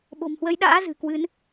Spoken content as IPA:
ɓ o̤˨˩ m h w əː˨˦ j ɗ a̰ː˧˥ z ɨ̤˨˩ k w ɨ˨˦ n

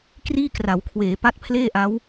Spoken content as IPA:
k r iː˥˩ k r a˩˦ w kʰ w eː˩˦ p a˦˥ t̚ pʰ l eː˥˩ ʔ a˦˥ w

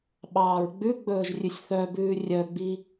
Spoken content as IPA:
ɓ ɑː ɹ ɡ͡b ʉ ɡ͡b ɵː ʒ rʲ ʉ sʲ θ œ b ʉː rʲ œ ɡ͡b i

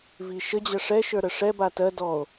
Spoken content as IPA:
v i ʃ ə d͡ʑ ə ʂ ɛ ʃ ə˞ ɾ ə ʂ ɛ b a t ɜ d ɔ o̯

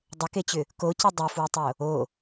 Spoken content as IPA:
dˤ ə k e t͡ɕ ʏ | k o c ʏ dˤ ʏ f w ə tˤ o | o

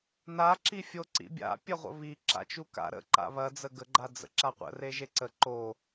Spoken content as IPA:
n a ǁ i fʲ o ǀ ḭ bʲ a̰ pʲ ɐ ʁʷ ə̰ β i ǁ a̰ t͡ʃ u k a̰ ɾ ə̰ ǃ a̰ β ɐ d͡z ə ɡ ə ɡ͡ǃ a d͡z ə̰ ǁ a qʷ ə̰ r e ʒ e ǀ ə ǃ o

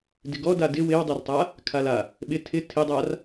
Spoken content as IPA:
d ɪ ɡ ɔ d a d ɪ w ɪ w dˤ ɛ r tˤ a | kʰ a l a | ɓ ɪ tʰ ɪ tʰ ɪ dˤ a r

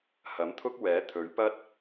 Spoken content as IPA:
h ɐ˨˥ m t̪ʰ ʊ˥ k̚ w ɛː˨˥ t̪ʰ ɵ˨˥ ɥ p ɐ˥ t̚

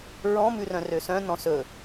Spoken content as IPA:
ɹ ɔ̃ m ʉ r œ̃ r ø s œ̃ n ɔ̃ s ɵ

